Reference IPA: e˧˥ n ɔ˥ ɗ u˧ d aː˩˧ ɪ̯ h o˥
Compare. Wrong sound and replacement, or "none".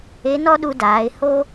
none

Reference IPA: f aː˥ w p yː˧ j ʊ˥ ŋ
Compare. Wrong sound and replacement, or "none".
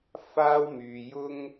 p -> m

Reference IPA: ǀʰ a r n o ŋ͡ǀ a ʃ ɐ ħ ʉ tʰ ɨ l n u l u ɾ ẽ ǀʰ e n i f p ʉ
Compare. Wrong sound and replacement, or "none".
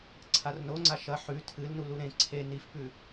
none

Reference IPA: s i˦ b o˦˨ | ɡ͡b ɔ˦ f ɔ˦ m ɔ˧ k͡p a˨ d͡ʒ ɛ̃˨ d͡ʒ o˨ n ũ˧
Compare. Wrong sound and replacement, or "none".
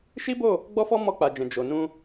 s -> ʃ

